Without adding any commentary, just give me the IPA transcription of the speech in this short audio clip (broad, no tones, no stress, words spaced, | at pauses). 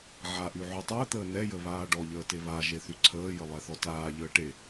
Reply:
ʕaʔy ʕytˤəːt̪əː nɛjə βaːɖɔʎəː teβaʒe θyǀʰəːjə lˠɛθɔtaːʎəː ʈe